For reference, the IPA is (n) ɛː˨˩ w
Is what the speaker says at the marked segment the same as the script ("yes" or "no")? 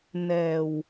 yes